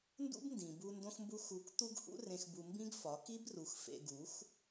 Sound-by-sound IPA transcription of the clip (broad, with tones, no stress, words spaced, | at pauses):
ndṵ˦bndĩ˨bu˧ ndõ˦xmbu˦ xu˧k t̪u˦ɡhṵ˦rẽ˧xbu˧ mbĩ˦ɡfɒ˨˦ki˦bru˨˦x fḛ˧ɡu˨˦x